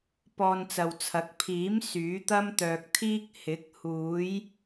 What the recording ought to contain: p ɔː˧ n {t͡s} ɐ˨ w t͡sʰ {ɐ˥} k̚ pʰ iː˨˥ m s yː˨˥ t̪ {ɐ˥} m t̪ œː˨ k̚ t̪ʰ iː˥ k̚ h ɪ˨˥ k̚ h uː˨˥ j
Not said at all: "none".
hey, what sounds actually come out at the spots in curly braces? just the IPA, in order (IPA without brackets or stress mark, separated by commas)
t͡s, ɐ˨˥, ɐ˥